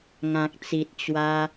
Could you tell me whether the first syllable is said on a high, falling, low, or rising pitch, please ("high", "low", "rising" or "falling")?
low